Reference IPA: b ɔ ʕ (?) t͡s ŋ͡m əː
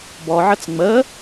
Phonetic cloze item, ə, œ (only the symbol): ə